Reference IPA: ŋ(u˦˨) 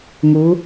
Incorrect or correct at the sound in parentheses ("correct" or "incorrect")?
incorrect